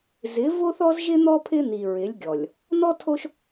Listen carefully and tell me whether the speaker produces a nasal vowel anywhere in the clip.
no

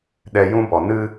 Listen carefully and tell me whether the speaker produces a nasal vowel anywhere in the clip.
yes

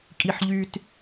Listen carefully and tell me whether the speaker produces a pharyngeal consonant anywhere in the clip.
yes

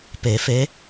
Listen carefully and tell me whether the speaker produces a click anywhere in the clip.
no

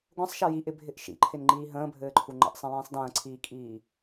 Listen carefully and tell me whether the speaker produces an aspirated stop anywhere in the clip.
yes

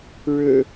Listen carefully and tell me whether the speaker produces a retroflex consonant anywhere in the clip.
yes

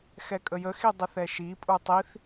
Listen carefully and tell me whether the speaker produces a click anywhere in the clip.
no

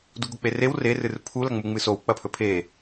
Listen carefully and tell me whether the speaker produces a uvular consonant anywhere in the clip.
no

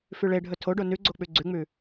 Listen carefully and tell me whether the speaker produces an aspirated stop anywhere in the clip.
yes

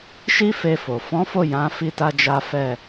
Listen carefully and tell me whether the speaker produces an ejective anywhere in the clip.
no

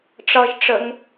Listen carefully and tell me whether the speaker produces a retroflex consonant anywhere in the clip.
yes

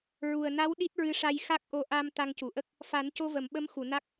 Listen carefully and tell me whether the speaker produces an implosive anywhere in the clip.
yes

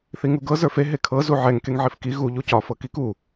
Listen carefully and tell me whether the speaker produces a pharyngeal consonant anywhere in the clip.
yes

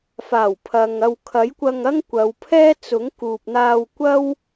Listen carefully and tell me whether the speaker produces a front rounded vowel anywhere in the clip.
no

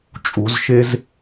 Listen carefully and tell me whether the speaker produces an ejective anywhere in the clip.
yes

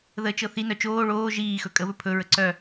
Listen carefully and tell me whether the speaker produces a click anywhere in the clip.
yes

